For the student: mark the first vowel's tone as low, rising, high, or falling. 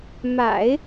low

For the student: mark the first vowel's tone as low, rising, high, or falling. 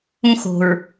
high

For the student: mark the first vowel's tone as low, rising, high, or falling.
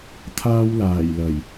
high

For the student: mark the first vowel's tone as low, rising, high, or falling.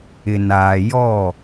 low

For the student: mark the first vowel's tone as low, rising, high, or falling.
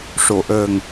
low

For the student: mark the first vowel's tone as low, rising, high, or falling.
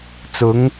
rising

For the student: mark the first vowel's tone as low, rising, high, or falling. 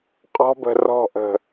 high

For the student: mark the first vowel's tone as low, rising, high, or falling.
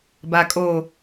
low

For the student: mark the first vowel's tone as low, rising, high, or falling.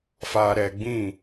low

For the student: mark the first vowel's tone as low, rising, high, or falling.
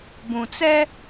low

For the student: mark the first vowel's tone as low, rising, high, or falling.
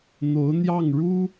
rising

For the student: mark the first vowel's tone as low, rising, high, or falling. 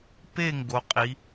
falling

